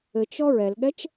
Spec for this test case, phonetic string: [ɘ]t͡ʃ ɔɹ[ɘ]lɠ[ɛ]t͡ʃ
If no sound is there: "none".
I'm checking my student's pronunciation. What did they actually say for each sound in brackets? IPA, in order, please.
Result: ɘ, ɛ, ɛ

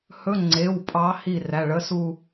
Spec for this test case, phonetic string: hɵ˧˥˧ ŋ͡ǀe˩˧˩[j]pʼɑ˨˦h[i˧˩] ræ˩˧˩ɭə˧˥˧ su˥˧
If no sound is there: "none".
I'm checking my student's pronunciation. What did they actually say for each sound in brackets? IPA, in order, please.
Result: w, i˧˩

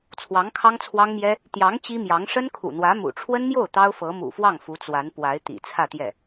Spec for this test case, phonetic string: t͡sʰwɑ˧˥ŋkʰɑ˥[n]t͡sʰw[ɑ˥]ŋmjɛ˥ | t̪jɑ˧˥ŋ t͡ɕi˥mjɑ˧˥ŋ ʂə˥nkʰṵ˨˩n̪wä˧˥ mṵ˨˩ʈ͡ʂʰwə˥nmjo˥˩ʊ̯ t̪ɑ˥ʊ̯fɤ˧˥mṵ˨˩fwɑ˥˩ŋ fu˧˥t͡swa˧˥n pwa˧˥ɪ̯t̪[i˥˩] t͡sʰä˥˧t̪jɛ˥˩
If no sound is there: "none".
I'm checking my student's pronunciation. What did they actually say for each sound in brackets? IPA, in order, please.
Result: ŋ, ɑ˥, ḭ˨˩

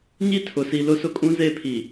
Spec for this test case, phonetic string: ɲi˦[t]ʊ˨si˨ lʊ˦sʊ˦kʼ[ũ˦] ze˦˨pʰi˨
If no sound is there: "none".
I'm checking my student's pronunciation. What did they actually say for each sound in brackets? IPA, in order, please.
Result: tʰ, ũ˦

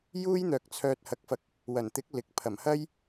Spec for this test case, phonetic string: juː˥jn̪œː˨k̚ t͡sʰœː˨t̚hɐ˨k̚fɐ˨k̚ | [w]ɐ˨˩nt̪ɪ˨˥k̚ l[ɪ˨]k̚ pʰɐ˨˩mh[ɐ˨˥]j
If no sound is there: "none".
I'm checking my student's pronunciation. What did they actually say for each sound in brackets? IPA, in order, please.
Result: w, ɪ˨˥, ɐ˥

